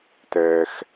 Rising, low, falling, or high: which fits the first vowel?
low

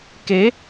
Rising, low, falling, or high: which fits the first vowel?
rising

